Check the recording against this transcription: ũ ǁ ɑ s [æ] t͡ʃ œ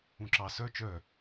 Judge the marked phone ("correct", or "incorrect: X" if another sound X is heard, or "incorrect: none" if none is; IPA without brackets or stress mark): incorrect: œ